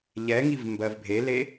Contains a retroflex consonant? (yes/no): no